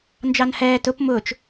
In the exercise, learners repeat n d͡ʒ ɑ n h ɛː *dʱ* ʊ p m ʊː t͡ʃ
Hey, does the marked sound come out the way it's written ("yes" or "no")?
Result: no